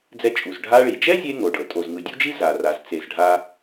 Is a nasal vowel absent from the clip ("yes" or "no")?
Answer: yes